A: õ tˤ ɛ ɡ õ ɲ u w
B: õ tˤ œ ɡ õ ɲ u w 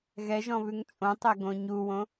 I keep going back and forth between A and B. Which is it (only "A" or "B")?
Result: A